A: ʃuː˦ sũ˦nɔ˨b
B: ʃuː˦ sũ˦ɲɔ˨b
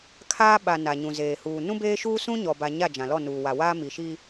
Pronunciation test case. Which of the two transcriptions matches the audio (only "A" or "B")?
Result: B